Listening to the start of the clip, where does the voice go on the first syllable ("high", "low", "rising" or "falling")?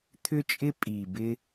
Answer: high